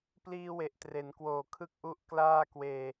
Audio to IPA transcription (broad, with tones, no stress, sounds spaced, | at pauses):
p l iː˧ w e˨˩ ʔ t r e˩˦ n k w oː˨˩ kʰ ɯ˥˩ k̚ ʔ u˥˩ ʔ k l aː˥˩ k w eː˧